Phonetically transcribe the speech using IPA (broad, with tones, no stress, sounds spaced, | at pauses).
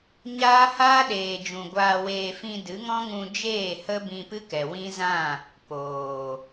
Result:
ɲ aː˦ h aː˦ ɗ eː˨ d͡ʒ ũ˨ ɡʷ aː˧ w eː˧ f ĩ˧ d ɨ˨˦ ŋ ɔ̃˦ ŋ ũ˧ d͡ʒ eː˦˨ h ə˦ b ĩ˧ p ɨ˦ k ɛ˨ w ĩ˦ z ã˦˨ | p oː˨